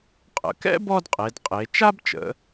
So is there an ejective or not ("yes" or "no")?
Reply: yes